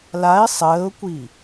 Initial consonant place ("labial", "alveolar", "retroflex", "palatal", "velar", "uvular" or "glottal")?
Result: alveolar